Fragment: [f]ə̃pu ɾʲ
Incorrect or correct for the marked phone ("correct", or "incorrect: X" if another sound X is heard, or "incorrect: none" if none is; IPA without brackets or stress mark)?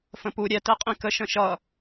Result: correct